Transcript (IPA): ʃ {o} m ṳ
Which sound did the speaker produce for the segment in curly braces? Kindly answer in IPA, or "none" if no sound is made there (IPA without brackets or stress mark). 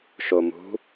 o